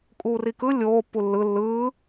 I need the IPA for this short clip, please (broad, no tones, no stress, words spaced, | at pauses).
kʼuːrikɯ lʲoːpːu lːɯ lːɯː